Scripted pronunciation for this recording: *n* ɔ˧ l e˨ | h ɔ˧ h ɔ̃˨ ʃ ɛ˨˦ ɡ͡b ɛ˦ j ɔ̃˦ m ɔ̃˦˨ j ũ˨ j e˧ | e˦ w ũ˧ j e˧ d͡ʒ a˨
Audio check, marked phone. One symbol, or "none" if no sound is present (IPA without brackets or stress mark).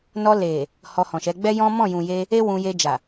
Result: n